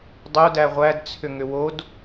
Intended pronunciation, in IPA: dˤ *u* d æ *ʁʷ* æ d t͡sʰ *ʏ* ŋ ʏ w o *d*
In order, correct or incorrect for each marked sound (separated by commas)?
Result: incorrect, correct, correct, correct